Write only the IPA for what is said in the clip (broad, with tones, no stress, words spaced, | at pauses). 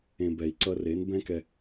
ẽ˧ bɛ˨i̯ǀʌ˧re˨˦n bɛ̃˦kɛ˧